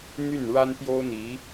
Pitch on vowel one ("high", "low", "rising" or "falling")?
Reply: falling